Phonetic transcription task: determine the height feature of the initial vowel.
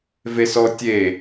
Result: mid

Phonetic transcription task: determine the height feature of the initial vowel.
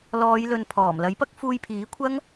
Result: mid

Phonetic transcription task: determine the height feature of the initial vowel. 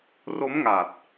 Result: mid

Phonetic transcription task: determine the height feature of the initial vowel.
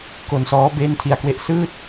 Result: mid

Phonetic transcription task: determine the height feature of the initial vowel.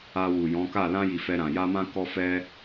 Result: low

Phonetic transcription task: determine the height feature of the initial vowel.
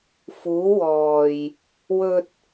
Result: high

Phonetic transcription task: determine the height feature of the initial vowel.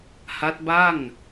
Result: low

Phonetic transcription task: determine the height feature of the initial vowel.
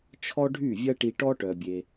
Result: mid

